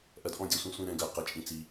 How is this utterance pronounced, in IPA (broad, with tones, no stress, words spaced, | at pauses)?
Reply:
ʔɜ˨dʔɔ̃˦˨dʲɔ˨sʷĩ˨ sʷĩ˨ ɾɛ̃˨ɡɜ˨ qɛ˨t͡ʃʼĩ˨t͡si˨